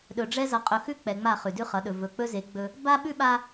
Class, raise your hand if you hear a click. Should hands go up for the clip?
no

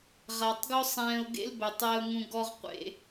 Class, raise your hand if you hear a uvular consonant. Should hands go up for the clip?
yes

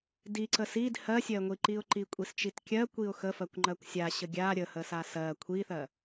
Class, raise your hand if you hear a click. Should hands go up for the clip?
yes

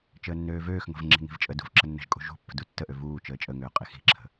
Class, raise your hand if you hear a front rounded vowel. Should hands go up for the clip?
yes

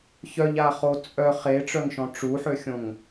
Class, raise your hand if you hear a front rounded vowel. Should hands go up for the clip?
yes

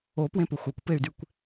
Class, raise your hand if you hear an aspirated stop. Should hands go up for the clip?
no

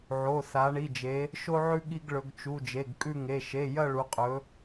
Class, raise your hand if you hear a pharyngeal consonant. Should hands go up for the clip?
yes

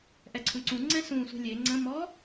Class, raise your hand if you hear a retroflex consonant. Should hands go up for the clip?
no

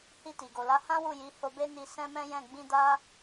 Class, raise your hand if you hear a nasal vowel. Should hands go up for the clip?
yes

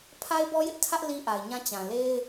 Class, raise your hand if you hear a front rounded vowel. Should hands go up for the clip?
no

